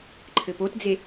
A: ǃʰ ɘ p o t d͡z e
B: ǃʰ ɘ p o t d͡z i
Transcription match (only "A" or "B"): A